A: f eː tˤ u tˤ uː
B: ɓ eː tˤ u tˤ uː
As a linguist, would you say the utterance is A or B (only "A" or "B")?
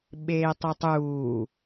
B